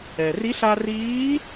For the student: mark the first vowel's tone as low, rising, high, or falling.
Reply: low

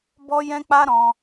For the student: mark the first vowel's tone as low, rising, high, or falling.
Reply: high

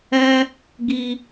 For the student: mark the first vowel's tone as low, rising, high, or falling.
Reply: high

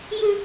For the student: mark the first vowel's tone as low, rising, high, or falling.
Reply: high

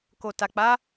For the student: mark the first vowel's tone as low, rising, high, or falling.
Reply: low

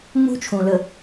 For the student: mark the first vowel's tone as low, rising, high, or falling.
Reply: high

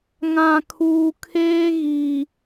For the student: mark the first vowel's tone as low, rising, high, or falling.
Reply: low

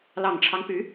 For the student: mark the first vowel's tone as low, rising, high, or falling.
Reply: low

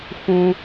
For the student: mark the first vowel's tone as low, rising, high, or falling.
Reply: high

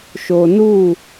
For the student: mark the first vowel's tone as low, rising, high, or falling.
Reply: low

